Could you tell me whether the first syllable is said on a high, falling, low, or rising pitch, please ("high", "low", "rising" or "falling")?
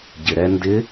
low